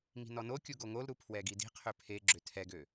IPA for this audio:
ŋ i̤ n ɔ n o kʲ u ɡ o ŋ o l ɾ u pʰ w ɛ ɡ i d i̤ qʰ ø pʰ e ɡ͡ǁ ø tʰ ɛ ɡ ø

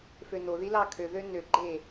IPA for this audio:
f ø n o ð i l ɑ kʰ ø ð ø n ø ɡ͡ǃ e

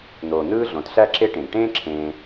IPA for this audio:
n̪ oː˩ n̪ ɯː˥ ɮ õ˩ t ɬ æ˦ ǁ e˦ ʈ ẽ˩ ɡ ʈ ẽː˥ ǁʰ ẽː˨

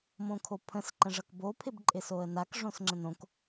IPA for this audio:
m õ kʰ o pʰ ə̃ s ǃ ə̃ ʐ ʌ k b o pʰ ɪ b ǃʼ ɪ s o ə̯ n a k ʐ õ s ŋ͡ǁ ə̃ n õ k

